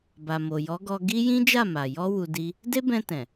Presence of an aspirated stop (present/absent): absent